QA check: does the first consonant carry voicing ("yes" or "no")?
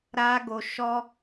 yes